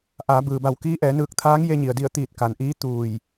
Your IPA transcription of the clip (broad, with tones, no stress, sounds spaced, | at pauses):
ʔ aː˩˧ b ɯː˩ b a˧˩ w k iː˧˥ ʔ ɛː˩˧ n ɯː˧˩ k̚ t̪ʰ aː˧˥ ŋ j e˧ ɲ i˩ ə̯ d i˧˩ ə̯ t̪ iː˧˩ t̚ k a˩ n ʔ iː˧˥ t̪ uː˧˩ j